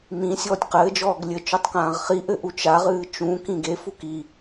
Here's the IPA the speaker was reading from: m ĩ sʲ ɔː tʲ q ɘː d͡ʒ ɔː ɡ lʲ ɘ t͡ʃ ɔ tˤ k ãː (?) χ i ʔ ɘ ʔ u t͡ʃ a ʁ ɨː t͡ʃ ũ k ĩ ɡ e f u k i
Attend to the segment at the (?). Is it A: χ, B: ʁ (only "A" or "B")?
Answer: B